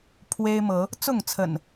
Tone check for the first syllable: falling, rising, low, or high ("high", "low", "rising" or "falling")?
high